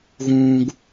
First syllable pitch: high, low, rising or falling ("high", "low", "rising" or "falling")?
high